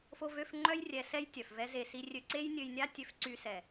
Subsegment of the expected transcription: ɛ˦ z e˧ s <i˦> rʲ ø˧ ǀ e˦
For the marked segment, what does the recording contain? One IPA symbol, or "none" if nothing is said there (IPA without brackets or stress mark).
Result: i˦